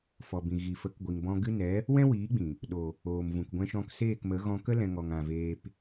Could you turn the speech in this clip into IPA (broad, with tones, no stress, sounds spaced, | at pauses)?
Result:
f ɔ˨ b ĩ˨ ɣ i˨ f ə˨˦ k ɡʷ i˨ ŋ b ɔ̃˧ ɡ ɨ˦ n ɛ˨˦ | w ɛ̃˦ w iː˨˦ ɡ͡b ĩ˨ | ɗ o˨ | oː˨ m v ũ˨ k ɡʷ ɛ̃˧ ʃ ɔ̃˧ k s eː˦˨ k m ə˨˦ ɣ ɔ̃˧ k ə˦ l ɛ̃˧ ŋ ɔ˨ ŋ ã˨ v eː˧ p